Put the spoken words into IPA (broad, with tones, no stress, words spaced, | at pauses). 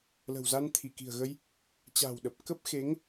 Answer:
lə̤˨˩wza˧nt̪ʰi˧˩ ki̤˨˩ə̯ɣə˧j | t͡ɕa̤ː˨˩wɗə˨˩p̚ kə˦˥p̚xe˨˦ŋ